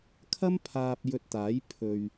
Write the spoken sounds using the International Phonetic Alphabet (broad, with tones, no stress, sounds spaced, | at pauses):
kʰ ɐ˥ m pʰ aː˨ p̚ j ɵ˧ t̚ t̪ aː˨˥ j pʰ ɵ˨ ɥ